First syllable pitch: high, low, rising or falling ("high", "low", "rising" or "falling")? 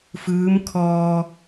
rising